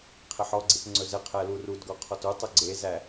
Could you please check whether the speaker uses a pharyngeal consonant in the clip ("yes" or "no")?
yes